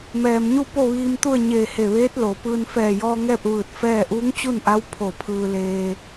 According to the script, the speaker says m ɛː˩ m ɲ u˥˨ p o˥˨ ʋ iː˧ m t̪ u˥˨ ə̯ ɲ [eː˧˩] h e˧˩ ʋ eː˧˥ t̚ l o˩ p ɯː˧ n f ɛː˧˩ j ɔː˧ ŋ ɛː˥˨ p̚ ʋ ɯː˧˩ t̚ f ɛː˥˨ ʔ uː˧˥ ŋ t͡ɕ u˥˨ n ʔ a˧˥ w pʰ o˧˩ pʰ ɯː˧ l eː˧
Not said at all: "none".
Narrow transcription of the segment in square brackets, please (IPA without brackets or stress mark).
eː˧˩